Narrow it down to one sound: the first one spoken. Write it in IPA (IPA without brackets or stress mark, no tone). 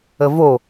ə